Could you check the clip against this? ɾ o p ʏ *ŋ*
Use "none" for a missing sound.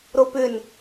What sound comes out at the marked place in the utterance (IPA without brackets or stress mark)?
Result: n